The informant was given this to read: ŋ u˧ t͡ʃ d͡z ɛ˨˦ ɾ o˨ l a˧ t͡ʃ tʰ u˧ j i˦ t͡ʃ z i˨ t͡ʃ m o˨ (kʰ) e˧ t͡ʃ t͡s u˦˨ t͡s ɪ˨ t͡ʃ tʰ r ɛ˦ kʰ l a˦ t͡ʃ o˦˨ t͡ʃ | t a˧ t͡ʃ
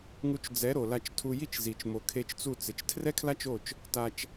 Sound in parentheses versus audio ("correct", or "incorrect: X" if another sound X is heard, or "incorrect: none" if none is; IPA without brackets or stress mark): correct